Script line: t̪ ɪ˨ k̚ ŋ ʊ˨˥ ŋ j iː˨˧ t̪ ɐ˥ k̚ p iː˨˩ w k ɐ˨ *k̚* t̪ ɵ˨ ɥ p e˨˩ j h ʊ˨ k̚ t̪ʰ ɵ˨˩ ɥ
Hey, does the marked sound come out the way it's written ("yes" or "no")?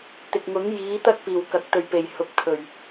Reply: yes